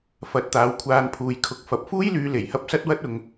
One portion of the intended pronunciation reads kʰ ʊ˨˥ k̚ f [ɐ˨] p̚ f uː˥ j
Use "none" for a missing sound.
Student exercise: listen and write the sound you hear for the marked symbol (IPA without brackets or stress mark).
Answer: ɐ˨